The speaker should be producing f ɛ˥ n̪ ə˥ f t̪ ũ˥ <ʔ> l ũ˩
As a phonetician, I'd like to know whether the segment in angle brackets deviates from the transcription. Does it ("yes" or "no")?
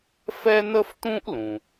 no